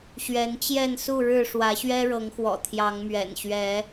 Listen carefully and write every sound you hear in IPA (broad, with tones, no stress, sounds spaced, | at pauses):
ɕ ɥ ɛ˨˦ n t͡ɕ j ɛ˥˨ n s u˥˨ ɻ ɻ̩˥˨ ʂ w ä˨˦ ɕ ɥ ɛ˦ ɻ ɤ˨˦ ŋ x w ɔ̰˨˩ t̪ʰ j ɑ˨˦ ŋ m ɥ ɛ̰˨˩ n ɕ ɥ ɛ˨˦